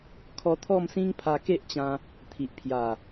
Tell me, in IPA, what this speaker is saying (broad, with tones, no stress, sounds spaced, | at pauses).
kʰ ɔ˧ t̪ʰ ɔ˥˧ m s ĩ˦ ŋ pʰ a˧ k e˦ ʔ t͡ɕ ã˧ | t̪ʰ i˨ ʔ pʰ j a˨˩